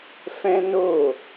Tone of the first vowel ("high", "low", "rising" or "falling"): high